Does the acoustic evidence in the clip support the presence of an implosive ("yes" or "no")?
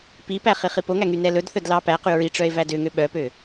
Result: yes